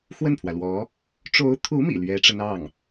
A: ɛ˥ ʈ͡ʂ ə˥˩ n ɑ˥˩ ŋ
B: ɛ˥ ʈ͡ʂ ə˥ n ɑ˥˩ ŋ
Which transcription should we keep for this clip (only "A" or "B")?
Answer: B